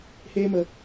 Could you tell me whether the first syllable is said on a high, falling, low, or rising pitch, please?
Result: high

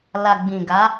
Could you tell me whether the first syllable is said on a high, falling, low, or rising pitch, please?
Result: low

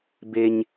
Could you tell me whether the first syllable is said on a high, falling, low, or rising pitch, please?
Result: high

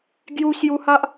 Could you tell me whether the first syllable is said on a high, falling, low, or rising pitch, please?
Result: high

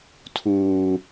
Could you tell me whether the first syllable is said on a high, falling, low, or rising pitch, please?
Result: low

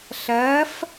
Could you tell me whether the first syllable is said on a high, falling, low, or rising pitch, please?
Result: rising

